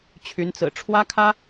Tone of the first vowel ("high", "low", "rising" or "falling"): rising